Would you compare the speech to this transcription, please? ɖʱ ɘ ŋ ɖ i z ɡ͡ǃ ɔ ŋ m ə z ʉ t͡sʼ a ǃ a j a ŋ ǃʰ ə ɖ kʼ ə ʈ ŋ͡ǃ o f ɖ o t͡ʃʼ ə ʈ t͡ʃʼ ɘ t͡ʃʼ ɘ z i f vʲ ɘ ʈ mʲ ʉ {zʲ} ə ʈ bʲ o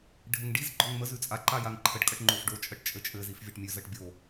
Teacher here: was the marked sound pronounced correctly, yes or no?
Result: no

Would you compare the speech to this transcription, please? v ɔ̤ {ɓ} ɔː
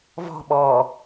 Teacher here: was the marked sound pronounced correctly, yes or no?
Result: yes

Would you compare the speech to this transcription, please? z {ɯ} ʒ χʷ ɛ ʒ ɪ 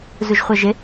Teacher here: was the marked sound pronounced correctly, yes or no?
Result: no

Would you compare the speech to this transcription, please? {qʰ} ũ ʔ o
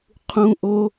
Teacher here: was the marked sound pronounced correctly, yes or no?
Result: yes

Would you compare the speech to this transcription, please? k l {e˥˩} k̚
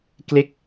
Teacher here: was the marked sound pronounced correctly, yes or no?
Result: yes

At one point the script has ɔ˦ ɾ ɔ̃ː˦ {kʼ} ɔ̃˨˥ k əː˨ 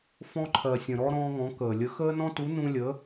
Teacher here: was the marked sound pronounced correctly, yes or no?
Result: no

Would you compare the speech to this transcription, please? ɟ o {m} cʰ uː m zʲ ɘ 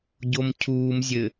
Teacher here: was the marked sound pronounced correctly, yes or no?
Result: yes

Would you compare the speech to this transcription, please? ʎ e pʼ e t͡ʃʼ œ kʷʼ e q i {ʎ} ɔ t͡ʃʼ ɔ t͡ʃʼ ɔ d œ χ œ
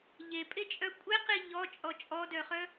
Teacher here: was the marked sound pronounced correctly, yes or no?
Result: yes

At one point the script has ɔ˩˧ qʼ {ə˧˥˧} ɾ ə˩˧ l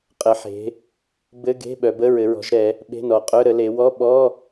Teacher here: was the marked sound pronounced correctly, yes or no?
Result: no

